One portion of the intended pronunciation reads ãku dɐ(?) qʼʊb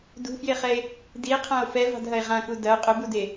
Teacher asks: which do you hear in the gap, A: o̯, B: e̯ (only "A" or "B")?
A